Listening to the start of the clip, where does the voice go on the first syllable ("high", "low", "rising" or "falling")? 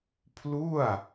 falling